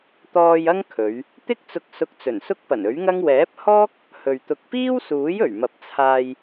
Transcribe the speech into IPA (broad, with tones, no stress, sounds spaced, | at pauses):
t̪ ɔː˧ j ɐ˥ ŋ kʰ ɵ˨˧ ɥ | t̪ ɪ˥ k̚ t͡s ʊ˧ k̚ s ʊ˧ k̚ t͡s ɵ˨˩ n s ʊ˥ k̚ p ɐ˨˩ n ɵ˨˥ ɥ ŋ ɐ˥ ŋ w ɛː˨˥ p̚ h ɔː˥ k̚ | h ɵ˨ ɥ t̪ ʊ˧ k̚ p iː˥ w s uː˨˥ j ɵ˨˩ ɥ m ɐ˨ p̚ t͡sʰ aː˧ j